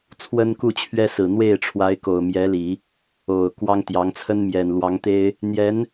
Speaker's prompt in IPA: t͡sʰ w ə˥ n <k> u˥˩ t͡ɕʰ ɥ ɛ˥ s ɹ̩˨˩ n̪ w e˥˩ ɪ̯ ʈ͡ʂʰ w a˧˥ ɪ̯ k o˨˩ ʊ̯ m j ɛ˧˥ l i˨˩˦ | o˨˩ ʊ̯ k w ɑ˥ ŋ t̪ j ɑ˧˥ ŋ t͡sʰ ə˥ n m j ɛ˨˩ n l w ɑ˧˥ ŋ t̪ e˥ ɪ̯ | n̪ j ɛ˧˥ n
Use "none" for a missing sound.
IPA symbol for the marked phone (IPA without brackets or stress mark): k